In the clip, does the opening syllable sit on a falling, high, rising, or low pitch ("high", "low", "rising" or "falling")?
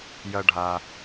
low